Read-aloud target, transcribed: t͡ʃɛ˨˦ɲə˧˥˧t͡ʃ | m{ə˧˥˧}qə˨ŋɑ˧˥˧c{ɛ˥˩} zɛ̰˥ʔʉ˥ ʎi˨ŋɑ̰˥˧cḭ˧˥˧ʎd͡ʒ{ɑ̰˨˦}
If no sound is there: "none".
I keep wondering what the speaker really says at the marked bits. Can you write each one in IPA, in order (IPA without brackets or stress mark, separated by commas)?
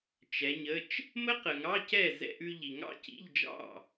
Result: ə˥, ɛ˥˩, ɑ̰˥˩